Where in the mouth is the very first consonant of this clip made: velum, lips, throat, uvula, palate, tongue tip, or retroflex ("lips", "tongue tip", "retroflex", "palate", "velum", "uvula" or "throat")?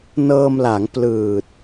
tongue tip